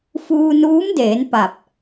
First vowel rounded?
yes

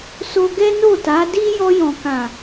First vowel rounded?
yes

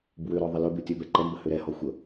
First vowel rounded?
yes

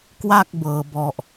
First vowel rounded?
no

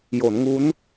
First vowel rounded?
yes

